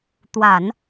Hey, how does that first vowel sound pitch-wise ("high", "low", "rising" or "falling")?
low